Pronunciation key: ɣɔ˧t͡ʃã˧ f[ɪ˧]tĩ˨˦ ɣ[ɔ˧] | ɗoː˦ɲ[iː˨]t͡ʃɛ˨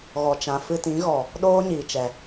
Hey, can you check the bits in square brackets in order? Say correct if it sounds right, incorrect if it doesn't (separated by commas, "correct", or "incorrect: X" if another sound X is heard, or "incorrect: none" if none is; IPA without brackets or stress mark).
incorrect: ɨ˧, incorrect: ɔ˨, correct